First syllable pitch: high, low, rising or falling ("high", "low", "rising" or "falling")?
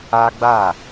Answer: high